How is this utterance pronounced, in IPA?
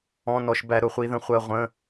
ɔ̃˧˥˧ n ɔ˧ ʃ b æ˧ ɾ ʊ˧ χʷ i˧ ð ə̃˧ χʷ ɜ˧ ʁʷ ə̃˧˥˧

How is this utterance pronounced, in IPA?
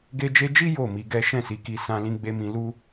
ɡ e˧ d͡ʒ e˧ d͡ʒ i˦ j o˦˨ m i˧ ɡ ɛ˦ ʃ ɛ̃˦˨ s i˨˦ k i˧ s ã˧ l ĩ˧ ɡ͡b e˧ m ĩ˧ l u˦

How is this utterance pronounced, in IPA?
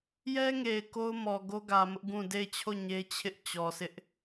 j ɛ˦ ŋ e˨ ɪ̯ k o˦ ʊ̯ m ɔ˨ ɡ o˦ ɡ ä˨ m ʊ˦ ʔ ɡ ũ˦˨ d e˦˨ ɪ̯ t͡ɕʰ o˦˨ ɲ e˦ t͡ɕʰ ɪ˦ ʔ t͡ɕ ɔ˨ s ɪ˦ ʔ

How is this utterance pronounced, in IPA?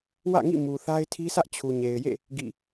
w ä̰˦˨ ŋ ḭ˦˨ m u˨ θ a˦ ɪ̯ tʰ i˦ sʰ ä˦ ʔ t͡ɕʰ u˨ ɲ e˨ ɪ̯ j ḛ˦˨ | ɡ ḭ˦˨

